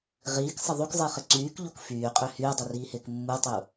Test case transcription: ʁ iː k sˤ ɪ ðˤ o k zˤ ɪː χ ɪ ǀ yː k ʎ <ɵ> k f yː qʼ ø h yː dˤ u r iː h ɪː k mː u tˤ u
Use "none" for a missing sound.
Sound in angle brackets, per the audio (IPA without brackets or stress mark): o